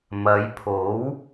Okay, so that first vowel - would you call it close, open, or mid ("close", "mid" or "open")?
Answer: open